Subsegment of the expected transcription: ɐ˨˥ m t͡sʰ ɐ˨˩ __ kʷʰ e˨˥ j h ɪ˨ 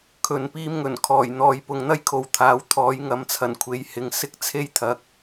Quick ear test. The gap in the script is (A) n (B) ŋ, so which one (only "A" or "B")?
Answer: A